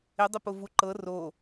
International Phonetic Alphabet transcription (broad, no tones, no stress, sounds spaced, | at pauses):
ɪ dˤ ɪ p ʊ v u ǃ ɤ r o